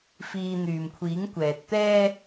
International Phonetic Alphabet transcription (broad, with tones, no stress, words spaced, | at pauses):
fiː˧ n̪yː˨mkʷʰiː˨˥ŋkʷɛː˨t̚t̪ɛː˥